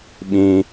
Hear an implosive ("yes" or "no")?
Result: yes